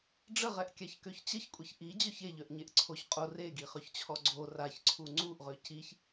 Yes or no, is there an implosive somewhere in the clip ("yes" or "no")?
no